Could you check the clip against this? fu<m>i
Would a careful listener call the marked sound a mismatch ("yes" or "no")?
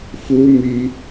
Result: no